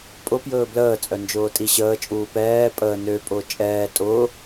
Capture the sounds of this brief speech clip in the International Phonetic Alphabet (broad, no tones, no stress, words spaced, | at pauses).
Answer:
pʼʊpjɵː bləːt͡sʼœ nd͡ʒʊːtʼiɕəːt͡ʃʼuː pɛː pʼəː nøpʼʊː t͡ʃʼɛː tʼʊ